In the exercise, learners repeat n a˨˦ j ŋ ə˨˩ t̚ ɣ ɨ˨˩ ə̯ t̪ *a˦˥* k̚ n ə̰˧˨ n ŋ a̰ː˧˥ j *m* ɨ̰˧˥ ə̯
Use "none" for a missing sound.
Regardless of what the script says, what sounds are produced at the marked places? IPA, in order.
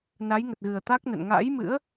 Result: a˦˥, m

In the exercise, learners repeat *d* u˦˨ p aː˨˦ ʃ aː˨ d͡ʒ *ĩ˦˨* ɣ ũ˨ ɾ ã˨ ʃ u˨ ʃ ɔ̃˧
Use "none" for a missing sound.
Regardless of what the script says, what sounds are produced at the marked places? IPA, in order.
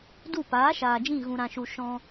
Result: d, ĩ˦˨

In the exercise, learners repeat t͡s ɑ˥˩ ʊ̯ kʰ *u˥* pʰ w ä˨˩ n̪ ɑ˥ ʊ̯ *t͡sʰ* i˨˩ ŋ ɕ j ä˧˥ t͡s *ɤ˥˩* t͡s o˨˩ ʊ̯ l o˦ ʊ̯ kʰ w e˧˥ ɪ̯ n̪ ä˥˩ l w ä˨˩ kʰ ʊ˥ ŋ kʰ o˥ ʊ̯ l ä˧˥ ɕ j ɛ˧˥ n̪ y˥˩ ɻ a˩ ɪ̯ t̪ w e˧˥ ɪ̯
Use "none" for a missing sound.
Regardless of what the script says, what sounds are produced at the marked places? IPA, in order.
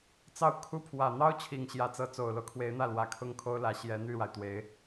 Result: u˥, t͡ɕʰ, ɤ˧˥

